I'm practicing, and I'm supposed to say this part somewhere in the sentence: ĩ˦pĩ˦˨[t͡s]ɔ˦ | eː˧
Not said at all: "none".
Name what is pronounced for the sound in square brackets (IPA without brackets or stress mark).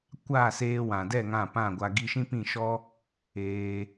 ʃ